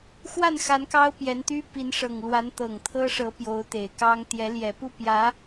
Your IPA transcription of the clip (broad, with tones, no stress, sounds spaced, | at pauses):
x w a˥˩ n x a˧˥ n k ɑ˥ ʊ̯ p j ɛ˧˥ n t̪ y˥ p i˧˥ n ʂ ɤ˨˩ ŋ l w a˧˥ n t̪ ɤ˨˩ ŋ t̪ʰ ɤ˥ ʂ ɤ˧˥ p j o˧˥ ʊ̯ t̪ e˨˩ ɪ̯ k ɑ˥ ŋ t̪ j ɛ˧˥ l j ɛ˨˩ p u˥˩ p j ä˧˥